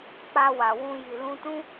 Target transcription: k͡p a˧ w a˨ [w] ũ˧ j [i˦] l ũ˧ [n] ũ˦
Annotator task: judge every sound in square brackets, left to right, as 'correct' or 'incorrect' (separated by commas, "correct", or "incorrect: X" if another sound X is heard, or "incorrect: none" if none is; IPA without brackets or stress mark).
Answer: correct, incorrect: i˨, incorrect: t